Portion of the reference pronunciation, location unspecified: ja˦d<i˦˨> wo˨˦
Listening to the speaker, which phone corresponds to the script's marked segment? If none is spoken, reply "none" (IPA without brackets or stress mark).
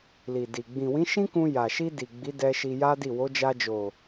i˦˨